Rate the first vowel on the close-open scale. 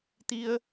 close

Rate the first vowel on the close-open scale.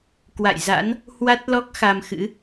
open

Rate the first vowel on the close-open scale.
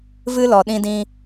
close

